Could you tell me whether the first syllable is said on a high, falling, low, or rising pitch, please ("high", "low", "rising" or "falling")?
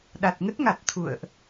low